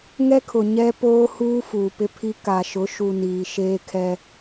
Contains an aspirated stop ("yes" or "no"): yes